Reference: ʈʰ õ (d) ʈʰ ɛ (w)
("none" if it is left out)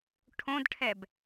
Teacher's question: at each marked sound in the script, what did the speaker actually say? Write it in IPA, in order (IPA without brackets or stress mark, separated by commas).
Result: d, b